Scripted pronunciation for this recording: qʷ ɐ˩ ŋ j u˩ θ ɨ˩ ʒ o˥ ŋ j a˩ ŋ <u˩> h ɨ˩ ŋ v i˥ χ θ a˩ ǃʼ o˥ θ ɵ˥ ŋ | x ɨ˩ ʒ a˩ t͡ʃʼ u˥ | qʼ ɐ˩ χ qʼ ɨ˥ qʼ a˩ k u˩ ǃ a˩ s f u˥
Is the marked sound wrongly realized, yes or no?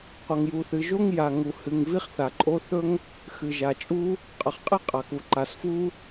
no